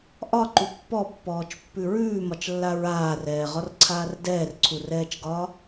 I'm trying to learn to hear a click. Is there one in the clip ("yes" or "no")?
yes